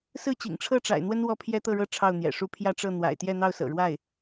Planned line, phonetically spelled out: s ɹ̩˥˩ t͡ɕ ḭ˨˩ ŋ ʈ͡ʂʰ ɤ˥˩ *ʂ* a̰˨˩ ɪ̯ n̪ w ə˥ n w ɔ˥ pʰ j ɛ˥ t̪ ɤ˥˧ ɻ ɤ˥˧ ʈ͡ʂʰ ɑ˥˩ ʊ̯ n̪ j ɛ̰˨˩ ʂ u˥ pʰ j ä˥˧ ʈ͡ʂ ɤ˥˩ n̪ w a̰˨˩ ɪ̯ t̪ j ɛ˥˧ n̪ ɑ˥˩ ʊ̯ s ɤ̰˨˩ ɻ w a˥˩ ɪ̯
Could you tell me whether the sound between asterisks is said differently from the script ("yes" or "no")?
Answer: yes